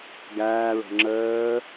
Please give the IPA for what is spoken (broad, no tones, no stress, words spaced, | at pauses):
ɡæːɹɔ̤ ŋ͡ǁəː